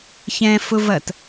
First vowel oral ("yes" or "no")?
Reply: no